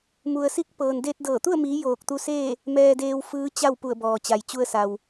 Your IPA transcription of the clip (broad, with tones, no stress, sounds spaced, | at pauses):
m u˩ ə̯ s i˧ k̚ p ɤː˩ n d e˧ t̚ d ɤː˧˩ t̪ u˥˨ ə̯ m iː˩˧ j oː˧˩ k̚ t̪ u˧ s eː˥˨ | m ɛː˧ d eː˧ w f ɯː˧˥ t͡ɕ a˥˨ w p u˧˩ ə̯ b ɔː˩ t͡ɕ a˩ j t͡ɕ u˧ ə̯ s a˩ w